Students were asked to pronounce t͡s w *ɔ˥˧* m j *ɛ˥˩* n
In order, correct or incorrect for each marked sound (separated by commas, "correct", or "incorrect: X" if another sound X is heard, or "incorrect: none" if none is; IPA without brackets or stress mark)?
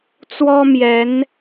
incorrect: ɔ˥, incorrect: ɛ˧˥